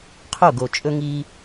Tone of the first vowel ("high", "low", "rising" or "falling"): falling